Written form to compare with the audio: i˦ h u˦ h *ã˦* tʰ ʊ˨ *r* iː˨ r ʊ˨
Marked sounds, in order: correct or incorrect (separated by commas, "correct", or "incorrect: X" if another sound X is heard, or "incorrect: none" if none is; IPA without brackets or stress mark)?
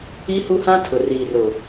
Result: correct, correct